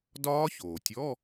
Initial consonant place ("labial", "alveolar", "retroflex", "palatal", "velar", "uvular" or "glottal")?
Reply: alveolar